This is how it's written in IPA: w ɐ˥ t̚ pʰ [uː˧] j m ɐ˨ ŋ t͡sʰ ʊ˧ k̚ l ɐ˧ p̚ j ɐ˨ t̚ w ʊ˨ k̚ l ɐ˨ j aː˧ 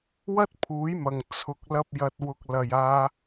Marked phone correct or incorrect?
incorrect